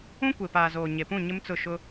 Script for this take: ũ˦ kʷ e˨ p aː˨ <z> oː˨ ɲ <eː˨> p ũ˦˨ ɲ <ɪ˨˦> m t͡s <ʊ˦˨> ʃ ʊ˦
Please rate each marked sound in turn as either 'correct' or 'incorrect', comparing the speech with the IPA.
correct, incorrect: e˨, incorrect: ɪ˦, correct

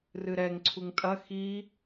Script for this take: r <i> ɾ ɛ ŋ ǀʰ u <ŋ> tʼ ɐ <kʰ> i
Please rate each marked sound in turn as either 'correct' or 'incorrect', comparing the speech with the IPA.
incorrect: ɨ, correct, incorrect: x

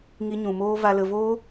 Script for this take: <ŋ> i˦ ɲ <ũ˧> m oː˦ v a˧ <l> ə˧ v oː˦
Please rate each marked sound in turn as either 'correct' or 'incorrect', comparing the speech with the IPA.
correct, correct, correct

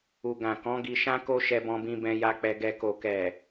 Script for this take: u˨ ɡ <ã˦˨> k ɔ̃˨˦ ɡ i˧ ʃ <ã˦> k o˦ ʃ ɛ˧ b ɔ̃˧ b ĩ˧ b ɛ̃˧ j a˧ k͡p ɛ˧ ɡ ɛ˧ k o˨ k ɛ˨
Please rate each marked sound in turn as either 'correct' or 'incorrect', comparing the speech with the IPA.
incorrect: ã˨, correct

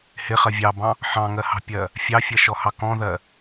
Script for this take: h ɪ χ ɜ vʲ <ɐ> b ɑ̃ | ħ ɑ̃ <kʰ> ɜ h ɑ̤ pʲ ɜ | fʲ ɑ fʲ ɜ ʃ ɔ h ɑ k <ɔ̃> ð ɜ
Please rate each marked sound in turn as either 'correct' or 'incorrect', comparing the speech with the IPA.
incorrect: ɑ, incorrect: ŋ, correct

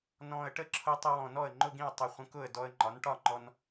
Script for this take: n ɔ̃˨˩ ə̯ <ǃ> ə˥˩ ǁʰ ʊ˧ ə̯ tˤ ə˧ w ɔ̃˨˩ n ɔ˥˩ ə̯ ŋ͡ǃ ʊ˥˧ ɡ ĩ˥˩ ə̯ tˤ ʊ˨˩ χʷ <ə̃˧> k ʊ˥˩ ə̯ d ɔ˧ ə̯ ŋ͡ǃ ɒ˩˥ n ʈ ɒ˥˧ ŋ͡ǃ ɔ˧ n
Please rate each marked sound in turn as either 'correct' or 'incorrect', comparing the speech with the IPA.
incorrect: ʈ, correct

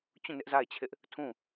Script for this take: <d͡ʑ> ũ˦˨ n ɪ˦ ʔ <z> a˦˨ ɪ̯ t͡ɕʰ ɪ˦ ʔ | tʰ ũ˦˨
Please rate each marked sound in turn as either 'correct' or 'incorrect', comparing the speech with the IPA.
incorrect: t͡ɕ, correct

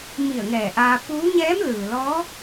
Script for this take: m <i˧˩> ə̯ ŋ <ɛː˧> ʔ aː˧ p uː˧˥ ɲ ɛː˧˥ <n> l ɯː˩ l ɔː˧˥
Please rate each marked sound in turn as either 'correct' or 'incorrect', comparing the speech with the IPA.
correct, incorrect: ɛː˧˩, incorrect: m

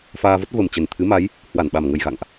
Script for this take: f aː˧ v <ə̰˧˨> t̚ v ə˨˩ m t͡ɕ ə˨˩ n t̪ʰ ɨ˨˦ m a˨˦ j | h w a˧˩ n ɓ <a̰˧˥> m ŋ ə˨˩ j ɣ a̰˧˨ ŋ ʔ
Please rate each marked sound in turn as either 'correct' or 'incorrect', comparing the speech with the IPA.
incorrect: ə˦˥, incorrect: a˨˩

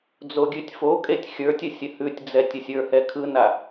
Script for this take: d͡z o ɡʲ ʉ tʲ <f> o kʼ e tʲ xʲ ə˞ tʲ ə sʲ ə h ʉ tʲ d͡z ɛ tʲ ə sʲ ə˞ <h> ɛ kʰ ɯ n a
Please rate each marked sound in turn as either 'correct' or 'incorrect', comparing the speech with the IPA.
correct, correct

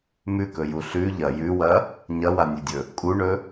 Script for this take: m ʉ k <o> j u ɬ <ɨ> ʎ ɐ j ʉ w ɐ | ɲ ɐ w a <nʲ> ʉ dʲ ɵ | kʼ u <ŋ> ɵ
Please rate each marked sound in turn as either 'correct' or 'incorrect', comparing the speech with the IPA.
incorrect: ɵ, incorrect: ʉ, correct, incorrect: ɳ

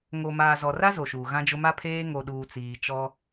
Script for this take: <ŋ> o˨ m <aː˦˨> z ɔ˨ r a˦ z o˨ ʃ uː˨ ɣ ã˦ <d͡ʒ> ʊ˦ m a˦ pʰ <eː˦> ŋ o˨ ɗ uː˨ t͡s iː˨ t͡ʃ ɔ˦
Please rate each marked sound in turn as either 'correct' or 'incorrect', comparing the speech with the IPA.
correct, incorrect: aː˨, correct, correct

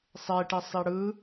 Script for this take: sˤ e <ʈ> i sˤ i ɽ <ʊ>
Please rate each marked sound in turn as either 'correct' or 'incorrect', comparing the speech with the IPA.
correct, incorrect: ɯ

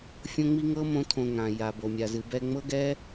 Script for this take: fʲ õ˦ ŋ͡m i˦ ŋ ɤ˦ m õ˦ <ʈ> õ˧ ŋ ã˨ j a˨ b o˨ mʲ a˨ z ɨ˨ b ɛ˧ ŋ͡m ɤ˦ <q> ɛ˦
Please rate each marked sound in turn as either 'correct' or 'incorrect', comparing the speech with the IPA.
incorrect: tʰ, incorrect: ɡ

